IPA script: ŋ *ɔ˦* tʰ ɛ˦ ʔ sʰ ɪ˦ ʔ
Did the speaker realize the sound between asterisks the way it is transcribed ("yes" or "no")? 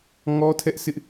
yes